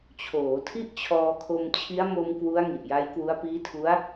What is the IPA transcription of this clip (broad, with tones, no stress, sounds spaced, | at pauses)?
t͡ɕʰ oː˩˦ tʰ i˥˩ ʔ t͡ɕʰ ɔː˧ kʰ o˧ m t͡ɕʰ i˦˥ a̯ m o˧ m k w u˦˥ a̯ ŋ i˨˩ ʔ j a˦˥ j k w u˦˥ a̯ p iː˦˥ tʰ u˦˥ a̯